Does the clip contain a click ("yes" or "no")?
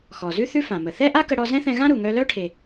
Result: no